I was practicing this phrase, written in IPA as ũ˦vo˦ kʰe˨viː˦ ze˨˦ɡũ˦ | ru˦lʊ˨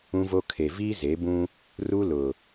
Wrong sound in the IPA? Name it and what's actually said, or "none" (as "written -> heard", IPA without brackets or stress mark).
ɡ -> b